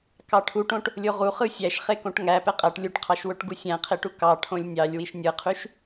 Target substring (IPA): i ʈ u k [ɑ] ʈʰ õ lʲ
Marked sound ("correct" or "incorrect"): correct